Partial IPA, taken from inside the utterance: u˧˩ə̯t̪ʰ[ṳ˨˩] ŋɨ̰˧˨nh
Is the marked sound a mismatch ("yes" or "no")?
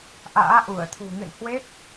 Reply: no